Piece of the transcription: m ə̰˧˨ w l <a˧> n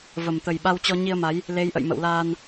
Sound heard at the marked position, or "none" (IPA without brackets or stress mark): aː˧